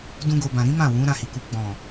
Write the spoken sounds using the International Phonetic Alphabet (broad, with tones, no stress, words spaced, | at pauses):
dũ˦ɡo˧ bã˨ɾĩ˨˦ mã˦˨wũ˨˦ ɾã˦˨hi˨ku˧ ɡ͡bɔ̃˨